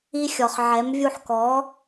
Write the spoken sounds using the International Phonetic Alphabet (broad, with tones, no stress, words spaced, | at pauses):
i˧xʲɔ˩χʕɛ˩˥m vʲu˧ħkɔ˩˥